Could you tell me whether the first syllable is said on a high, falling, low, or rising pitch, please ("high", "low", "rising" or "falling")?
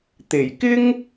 low